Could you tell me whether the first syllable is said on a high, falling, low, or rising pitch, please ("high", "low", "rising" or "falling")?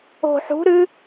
low